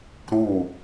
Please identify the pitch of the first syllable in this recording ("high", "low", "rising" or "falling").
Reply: falling